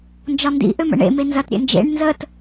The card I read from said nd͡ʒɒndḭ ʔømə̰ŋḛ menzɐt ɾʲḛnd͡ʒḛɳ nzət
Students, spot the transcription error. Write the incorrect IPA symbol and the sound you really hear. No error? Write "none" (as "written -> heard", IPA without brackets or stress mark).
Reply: ŋ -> ɳ